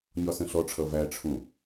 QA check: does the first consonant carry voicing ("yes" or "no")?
yes